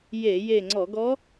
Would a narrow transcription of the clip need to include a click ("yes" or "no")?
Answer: yes